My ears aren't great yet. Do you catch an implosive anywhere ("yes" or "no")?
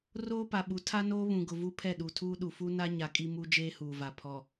yes